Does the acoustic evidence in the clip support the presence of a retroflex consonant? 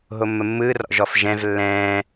no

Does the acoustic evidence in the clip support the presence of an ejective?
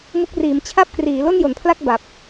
no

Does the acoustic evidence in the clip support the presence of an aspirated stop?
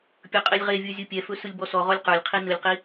yes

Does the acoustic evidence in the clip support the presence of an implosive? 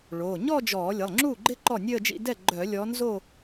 no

